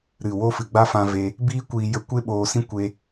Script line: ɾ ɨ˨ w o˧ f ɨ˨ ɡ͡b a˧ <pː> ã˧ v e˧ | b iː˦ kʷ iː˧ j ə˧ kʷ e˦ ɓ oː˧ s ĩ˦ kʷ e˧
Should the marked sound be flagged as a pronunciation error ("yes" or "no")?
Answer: yes